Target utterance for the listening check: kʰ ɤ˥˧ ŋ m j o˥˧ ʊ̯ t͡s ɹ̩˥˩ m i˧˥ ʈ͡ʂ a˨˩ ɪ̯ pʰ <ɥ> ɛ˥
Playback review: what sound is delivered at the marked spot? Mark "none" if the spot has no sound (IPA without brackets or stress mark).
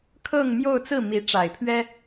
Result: ɥ